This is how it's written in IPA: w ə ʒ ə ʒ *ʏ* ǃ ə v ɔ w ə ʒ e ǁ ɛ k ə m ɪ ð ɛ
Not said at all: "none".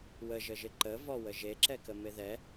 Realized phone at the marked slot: ɪ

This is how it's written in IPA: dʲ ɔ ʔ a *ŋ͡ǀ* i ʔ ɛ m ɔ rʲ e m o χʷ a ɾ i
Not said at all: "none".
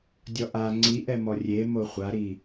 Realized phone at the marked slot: ŋ͡ǀ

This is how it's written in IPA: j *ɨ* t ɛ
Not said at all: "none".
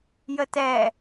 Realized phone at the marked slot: ə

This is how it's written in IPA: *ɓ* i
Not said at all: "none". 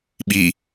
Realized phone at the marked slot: ɓ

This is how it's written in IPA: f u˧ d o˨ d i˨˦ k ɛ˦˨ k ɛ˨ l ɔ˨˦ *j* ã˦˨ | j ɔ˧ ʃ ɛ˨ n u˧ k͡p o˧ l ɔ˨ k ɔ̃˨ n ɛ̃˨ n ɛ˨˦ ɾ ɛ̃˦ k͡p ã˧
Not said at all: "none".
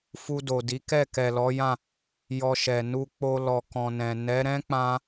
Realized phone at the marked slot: j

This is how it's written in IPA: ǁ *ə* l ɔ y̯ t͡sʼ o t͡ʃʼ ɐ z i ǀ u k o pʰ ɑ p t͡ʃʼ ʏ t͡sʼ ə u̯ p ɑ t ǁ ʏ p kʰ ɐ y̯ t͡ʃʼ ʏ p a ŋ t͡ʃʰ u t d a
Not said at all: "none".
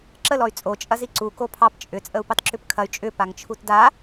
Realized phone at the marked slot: ə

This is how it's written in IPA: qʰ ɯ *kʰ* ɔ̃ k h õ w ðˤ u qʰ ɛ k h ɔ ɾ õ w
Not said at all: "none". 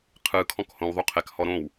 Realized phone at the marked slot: kʰ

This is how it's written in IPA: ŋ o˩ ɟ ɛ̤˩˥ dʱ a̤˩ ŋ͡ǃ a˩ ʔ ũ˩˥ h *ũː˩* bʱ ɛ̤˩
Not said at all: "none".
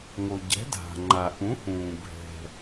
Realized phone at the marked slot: ũː˩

